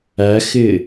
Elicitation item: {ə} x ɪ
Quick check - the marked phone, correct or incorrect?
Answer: incorrect